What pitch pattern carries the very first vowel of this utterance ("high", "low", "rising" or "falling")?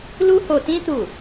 high